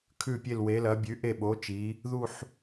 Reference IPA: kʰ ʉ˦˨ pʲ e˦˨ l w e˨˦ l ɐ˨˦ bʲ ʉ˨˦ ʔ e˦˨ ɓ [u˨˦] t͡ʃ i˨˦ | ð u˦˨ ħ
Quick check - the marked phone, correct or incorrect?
incorrect